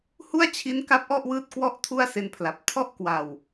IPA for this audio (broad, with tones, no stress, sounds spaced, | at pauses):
h u˥˩ a̯ t͡ɕʰ i˦˥ n k a˦˥ p̚ ʔ ɔ˥˩ ʔ w ɯː˥˩ t̚ k w ɔ˥˩ ʔ tʰ u˥˩ a̯ s e˧ n pʰ l a˨˩ p̚ tʰ ɔ˥˩ ʔ k w a˨˩ w